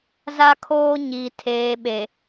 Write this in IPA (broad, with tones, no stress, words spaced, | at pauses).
za˦kʰoː˦ɲiː˨ tʰeː˨ɓe˨